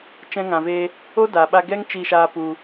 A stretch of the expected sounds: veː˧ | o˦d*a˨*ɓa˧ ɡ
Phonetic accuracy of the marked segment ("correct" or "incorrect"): correct